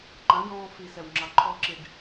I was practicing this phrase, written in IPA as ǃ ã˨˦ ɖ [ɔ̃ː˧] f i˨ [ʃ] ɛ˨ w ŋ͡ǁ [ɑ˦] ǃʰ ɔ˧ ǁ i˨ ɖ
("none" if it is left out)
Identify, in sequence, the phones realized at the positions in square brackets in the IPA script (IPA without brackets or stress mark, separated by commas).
ɔ̃ː˧, s, ɑ˨